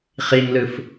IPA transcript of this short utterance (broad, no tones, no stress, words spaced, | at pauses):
χiŋlɯf